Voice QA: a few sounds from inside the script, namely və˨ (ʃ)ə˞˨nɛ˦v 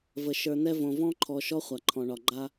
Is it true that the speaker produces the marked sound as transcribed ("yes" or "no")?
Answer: yes